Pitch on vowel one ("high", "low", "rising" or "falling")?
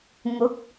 rising